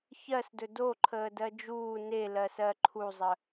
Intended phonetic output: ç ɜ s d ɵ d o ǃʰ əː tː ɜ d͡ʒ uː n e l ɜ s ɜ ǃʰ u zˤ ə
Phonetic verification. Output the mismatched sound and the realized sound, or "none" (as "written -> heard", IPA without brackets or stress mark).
tː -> d